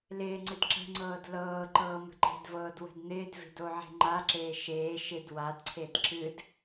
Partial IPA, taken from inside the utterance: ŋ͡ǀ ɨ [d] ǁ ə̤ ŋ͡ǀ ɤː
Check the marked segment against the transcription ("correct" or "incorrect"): correct